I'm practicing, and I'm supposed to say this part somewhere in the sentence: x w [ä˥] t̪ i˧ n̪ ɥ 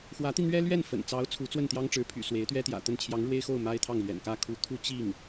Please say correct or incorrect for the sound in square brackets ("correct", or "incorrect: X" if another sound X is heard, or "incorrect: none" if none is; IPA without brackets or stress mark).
incorrect: ä˧˥